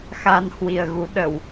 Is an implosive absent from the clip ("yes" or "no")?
no